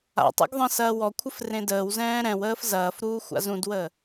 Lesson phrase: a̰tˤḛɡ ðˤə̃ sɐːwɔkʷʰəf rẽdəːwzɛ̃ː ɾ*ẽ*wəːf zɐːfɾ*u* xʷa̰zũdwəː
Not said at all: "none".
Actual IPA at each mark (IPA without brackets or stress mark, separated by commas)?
ɛ̃, uː